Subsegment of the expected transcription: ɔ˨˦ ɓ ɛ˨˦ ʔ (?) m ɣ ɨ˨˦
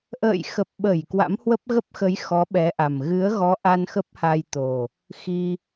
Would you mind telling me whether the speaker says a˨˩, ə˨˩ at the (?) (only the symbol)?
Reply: a˨˩